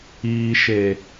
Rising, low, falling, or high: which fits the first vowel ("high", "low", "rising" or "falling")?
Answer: low